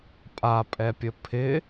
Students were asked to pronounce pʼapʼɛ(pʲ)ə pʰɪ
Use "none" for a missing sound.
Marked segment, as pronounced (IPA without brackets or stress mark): pʲ